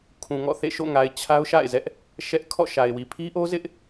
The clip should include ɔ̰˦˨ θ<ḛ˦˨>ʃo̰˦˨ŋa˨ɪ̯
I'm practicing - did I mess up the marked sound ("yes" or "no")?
no